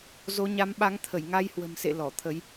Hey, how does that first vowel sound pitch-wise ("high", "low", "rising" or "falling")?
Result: rising